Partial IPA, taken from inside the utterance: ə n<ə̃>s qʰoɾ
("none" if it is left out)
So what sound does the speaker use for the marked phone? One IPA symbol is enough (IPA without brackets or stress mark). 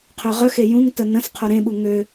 ə̃